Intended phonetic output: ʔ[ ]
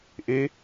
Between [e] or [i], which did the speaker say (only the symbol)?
e